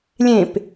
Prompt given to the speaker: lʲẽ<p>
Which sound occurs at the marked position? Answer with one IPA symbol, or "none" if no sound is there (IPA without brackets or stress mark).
p